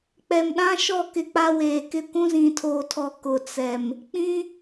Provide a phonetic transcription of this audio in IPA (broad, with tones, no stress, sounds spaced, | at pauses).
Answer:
k͡p ɛ˨ m ɗ ã˦ ʃ ɔ˦˨ k ɪ˦ k͡p a˦ w eː˨ k ɪ˦ kʷ ũ˦ z ĩ˨ tʰ oː˨ tʰ ɔ˨ k ʊ˨ t͡s ɛ˨ m | k͡p ĩ˦